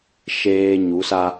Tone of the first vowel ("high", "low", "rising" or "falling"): high